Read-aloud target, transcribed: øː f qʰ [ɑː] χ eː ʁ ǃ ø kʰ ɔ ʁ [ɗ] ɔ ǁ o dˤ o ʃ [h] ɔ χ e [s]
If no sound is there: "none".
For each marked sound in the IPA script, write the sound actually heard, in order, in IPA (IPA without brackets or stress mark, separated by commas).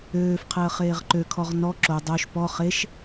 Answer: əː, n, p, ʃ